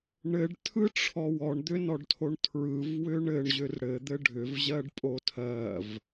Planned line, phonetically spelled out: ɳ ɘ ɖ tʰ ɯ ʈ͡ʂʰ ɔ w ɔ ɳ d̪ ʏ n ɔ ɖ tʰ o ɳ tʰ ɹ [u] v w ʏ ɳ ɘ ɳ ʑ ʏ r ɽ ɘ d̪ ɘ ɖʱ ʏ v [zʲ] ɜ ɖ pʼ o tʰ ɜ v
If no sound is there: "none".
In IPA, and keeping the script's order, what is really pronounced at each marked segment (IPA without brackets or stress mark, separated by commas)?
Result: ɯ, ʑ